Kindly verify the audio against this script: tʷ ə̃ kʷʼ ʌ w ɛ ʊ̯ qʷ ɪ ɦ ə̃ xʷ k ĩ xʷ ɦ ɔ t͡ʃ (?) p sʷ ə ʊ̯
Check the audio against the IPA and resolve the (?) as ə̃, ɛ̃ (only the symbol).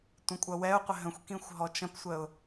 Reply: ə̃